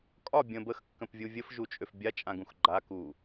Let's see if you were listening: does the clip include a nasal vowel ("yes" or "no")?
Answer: yes